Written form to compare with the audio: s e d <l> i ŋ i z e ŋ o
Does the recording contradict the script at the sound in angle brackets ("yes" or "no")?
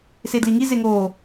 no